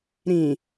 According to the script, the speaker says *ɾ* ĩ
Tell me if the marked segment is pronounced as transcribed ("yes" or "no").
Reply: yes